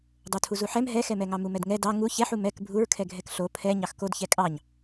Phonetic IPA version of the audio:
dˤotʰuzuħɛm ɦɛxɛmɛŋɑ mumɛdŋɛ dɑ ŋu çɛħu mɛk bʱuɹkʰɛ ɡʱɛkɬo pʰɛ ɲɑxkod çɛkʼɑɲ

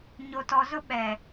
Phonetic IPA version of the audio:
ɲo˨tɔ˨zʊ˦ ɓɛ˨

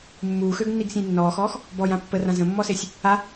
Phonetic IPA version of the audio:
mːuːxøɡnːiɡsʲə̃j nːɔːxɔːx | bɔjã pːərã zə̃mːɔsesʲ | a

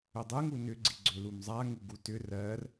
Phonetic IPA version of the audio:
ʏdˤɯŋu nʏɡ͡ǀiɡ͡ǀʏ lumzˤaŋu ɡutʏ rɜr

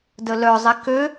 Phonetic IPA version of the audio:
dəlœ zˤikø

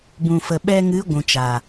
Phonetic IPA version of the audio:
bũ˨fə˨ ɓɛ˧ŋɨ˨˦ ɡʷũ˨t͡ʃa˨

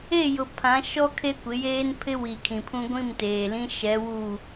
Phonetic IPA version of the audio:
e˦˨jʊ˨ pʰã˨˦ ʃɔ˦ kʰe˦kʷɪ˨˦jeː˦n pʰɪ˦ wi˨kʰĩ˨pʰũ˦ ɡʷĩ˦˨mteː˨lĩ˦ ʃɛ˨˦wu˦˨

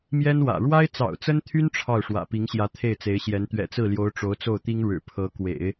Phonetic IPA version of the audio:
mjɛ˥nwä̰˨˩ ɻwa˥ɪ̯t͡sɑ̰˨˩ʊ̯t͡sə˥nt̪ʰy˥n ʈ͡ʂʰɑ˥˩ʊ̯ ʂwä̰˨˩pi˧˥ŋɕjä˧˥ t̪ʰe˥˩ɪ̯t͡se˧˥ɪ̯ɕjɛ˧˥n t̪ɥɛ̰˨˩t͡sɹ̩˥˩ljo˧˥ʊ̯ ʈ͡ʂo˧˥ʊ̯t͡so˥˩ʊ̯t̪i˥ŋ ɻɻ̩˨˩pʰɤ˧˥ kwḛ˨˩˦ɪ̯

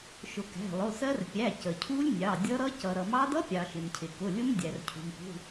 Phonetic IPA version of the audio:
ʃʊ˩ kæ̤˩˧˩lˠʊ˩˧˩sɜ˦˥r pʲæ˩˧˩cə˩cʰu˦˥lʲnʲɑ˩˧˩ dʲʌ˦˥ɾʌ˦˥ cʌ˩ɾʌ˩mɑ˦˥d ʌ˦˥pʲɑ˩ ʃɪ˩mcʰɪ˩kʊ˩˧˩lʲʊ˦˥m dʲæ˩rcʰṳ˩mpṳ˩˧˩

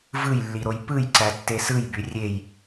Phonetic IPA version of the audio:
vɯjlːiɾoj pɯjǀætːe sɯjby rʲej

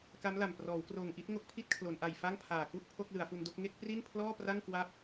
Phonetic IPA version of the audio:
ka˦˥mla˨˩m prɔː˩˦wkroː˨˩ŋʔi˦˥t̚ ŋo˦˥k̚pʰi˥˩t̚kʰlo˩˦nʔa˨˩j fa˥˩ŋpʰaː˨˩ku˥˩ʔ pʰo˥˩k̚lɯ˩˦a̯fu˧ndo˥˩k̚ ŋe˥˩k̚pri˥˩n pʰlɔː˥˩pra˥˩ŋkwa˦˥p̚

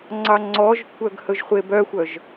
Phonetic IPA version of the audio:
ŋ͡ǀɑŋ͡ǀɔʒkʷʰœɡ hɵʒχʷebœxʷœʒ

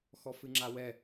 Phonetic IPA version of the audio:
xɔfɨŋ͡ǁawɛ

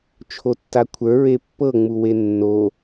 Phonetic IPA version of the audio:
t͡ʃʰotːakʷʰə˞ ɹepːɤ ŋ͡muwenːo

